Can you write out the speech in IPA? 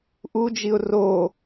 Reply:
ʔud͡ʒiʊ̯ ro

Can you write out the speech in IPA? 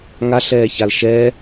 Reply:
ŋaɬɛːçal ʃɛ

